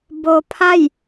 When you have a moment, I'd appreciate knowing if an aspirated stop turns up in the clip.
yes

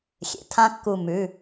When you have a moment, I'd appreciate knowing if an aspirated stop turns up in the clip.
yes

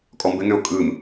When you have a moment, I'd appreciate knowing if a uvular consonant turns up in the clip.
no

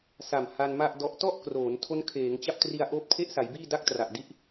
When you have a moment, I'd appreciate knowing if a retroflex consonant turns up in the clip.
no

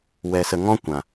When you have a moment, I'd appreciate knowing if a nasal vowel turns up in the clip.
yes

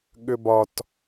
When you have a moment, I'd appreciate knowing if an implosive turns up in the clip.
yes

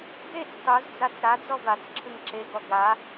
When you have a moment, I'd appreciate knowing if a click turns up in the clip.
yes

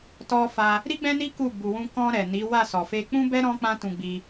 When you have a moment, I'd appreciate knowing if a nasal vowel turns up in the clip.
yes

